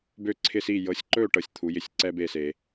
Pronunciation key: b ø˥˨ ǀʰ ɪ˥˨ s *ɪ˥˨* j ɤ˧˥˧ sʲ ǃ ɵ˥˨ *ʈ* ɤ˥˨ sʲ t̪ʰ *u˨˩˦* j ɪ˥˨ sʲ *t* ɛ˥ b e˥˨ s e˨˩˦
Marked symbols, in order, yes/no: no, yes, no, no

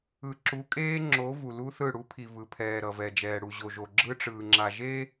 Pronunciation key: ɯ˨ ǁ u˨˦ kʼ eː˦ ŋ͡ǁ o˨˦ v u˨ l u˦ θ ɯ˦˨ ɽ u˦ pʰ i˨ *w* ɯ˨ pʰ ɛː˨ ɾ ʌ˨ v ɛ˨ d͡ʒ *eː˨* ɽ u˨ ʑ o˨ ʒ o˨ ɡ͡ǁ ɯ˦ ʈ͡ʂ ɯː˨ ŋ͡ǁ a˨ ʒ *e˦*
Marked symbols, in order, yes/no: no, no, yes

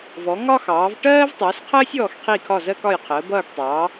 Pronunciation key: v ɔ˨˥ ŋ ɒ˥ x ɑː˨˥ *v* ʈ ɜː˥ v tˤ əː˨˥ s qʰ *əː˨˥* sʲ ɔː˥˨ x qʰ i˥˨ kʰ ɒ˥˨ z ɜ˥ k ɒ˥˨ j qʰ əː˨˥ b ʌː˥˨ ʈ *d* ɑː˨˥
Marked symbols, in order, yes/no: yes, no, no

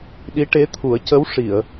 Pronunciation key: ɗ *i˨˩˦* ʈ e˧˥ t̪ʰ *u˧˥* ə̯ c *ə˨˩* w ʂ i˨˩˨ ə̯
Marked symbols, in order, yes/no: no, no, no

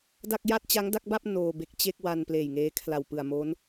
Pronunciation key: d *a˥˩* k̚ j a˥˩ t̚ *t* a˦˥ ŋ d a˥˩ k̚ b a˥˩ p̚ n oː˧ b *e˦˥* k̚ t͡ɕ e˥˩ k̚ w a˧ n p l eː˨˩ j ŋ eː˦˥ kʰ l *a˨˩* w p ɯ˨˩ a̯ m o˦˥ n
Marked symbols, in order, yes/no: yes, no, yes, yes

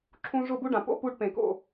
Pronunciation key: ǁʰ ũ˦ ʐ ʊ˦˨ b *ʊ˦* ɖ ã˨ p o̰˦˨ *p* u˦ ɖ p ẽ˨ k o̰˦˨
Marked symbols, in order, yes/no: no, yes

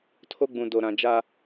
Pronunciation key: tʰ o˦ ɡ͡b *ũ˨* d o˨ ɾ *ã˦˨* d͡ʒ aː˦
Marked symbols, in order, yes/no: yes, no

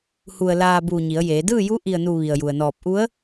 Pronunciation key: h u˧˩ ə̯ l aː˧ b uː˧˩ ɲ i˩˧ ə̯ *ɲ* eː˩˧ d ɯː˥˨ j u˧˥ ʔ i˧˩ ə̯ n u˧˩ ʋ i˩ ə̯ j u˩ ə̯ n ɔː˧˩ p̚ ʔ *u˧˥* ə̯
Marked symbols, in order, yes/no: no, yes

